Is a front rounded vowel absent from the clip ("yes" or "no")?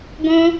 yes